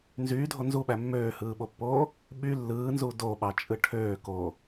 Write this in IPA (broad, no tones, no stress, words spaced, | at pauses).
nzyːdʱo nzuɓæ mːøːhɯːɓopːoː | ɓy lːɯːnzu doɓɑt͡ʃʼɯ ʈʰøːko